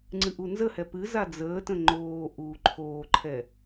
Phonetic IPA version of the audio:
ŋ͡ǀ ɨ ʔ u n z ə h ɛ p ɨ z a d͡z əː t ə̃ ŋ͡ǃ oː ʔ uː ǃʰ oː ǃʰ ɛ

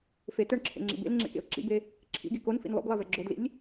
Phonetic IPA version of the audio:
f e t œ ɳ ǁʰ ḛ ŋ͡ǁ ḭ b ḛ l ŋ͡ǁ ḛ k ḛ ʊ̯ ǁ ḭ b e | ǁʰ ḭ ɡ i k o n f ḭ n lˠ o̰ b lˠ e v ɛ ɡ͡ǁ o d l ḭ lʲ

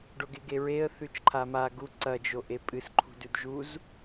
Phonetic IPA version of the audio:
ɖ o ɡ e ɡ e ɹ e ə̯ θ ʉ t͡ʃ ǃʰ a m a ɡ u ǀ ɐ d͡ʒ o ʔ e pʼ ɨ s ǃʰ ṳ d ʉ d ʒ u z

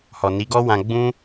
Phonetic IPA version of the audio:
h ɔ˨ n i˨˦ ɡ ɔ˦ w ã˧ ɡ͡b ũ˦

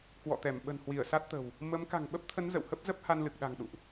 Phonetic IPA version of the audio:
k w ɔ̰˧˨ t̪ ɛ˧˩ m ɓ ə̤˨˩ n h w i˧˩ ə̯ s a˦˥ t̚ t̪ ə̤˨˩ w | m ə˨˦ m k a̤˨˩ ŋ ɓ ə˦˥ p̚ t̪ʰ ə˨˦ n z ə̰˧˨ w h ə˦˥ p̚ z ə˦˥ p̚ h a˧ n l ɨ˨˩ k̚ ɗ a̤˨˩ ŋ ɗ ṵ˧˨ ʔ

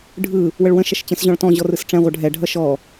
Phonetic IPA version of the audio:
ɖʱ ɯ | w ə ɭ w ə̃ ʃ ʌ ʃ t͡ɕ ə̃ s ʑ ɔ̃ ɭ t ɔ̃ ʑ ɔ r ɯ s ʈ͡ʂ ɛ̃ ʁʷ ʌ ɖʱ ɛ ɖʱ ʌ ʃ ɔ

